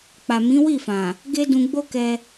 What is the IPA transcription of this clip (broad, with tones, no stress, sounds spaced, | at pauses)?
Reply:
k͡p a˨ m ĩ˨˦ w i˦˨ f ã˨ | ɡ e˦ d ũ˧ ɡ͡b o˦ k ɛ˧